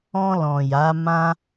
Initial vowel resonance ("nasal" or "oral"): nasal